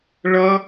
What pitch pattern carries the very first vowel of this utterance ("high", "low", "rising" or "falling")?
high